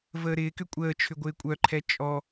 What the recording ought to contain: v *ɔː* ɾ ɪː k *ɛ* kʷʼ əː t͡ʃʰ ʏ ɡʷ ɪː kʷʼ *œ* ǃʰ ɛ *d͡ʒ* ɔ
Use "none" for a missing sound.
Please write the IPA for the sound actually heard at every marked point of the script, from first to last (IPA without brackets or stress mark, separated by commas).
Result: əː, ʏ, œ, t͡ʃʼ